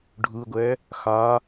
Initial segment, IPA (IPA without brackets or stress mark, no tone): ɖʱ